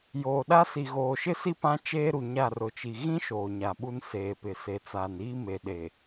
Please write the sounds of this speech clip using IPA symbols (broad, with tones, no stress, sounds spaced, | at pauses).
j oː˨ ɗ a˦ s i˨ ɣ oː˨ ʃ ɪ˦ s i˦ p ã˦ t͡ʃ eː˦ ɾ u˨ ɲ a˦˨ r ʊ˨ t͡ʃ i˨ ɣ ĩ˦ ʃ oː˨ ɲ a˨ ɓ u˦ n s eː˨ p ɪ˨ s e˨ t͡s aː˨ n iː˦ m e˨ ɗ e˨